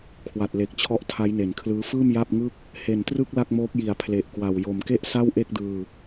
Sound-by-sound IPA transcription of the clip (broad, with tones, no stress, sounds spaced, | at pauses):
kʰ w a˨˩ t̚ l e˨˩ k̚ t͡ɕʰ ɔ˦˥ ʔ tʰ a˦˥ j n e˩˦ n kʰ l ɯː˦˥ f ɯː˥˩ m j a˥˩ p̚ ŋ ɯ˥˩ k̚ | h e˨˩ n t r ɯ˥˩ k̚ l a˥˩ k̚ m oː˦˥ k̚ j i˨˩ a̯ pʰ l e˨˩ ʔ k w a˨˩ w j o˨˩ m k e˥˩ ʔ s a˥˩ w ʔ e˥˩ k̚ d ɯː˧